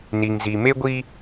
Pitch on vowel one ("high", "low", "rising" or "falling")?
low